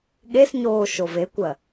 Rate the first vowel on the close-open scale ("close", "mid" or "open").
mid